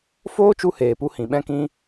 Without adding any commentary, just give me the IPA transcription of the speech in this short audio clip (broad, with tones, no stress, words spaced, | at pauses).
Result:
foː˦t͡ʃu˧ heː˨pu˧ hĩ˨ɓɛ̃˦kĩ˦